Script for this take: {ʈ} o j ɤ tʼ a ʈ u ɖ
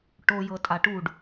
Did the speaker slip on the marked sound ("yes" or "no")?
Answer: no